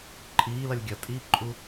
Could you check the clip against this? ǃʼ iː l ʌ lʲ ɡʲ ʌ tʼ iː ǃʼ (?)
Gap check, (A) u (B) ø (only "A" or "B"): A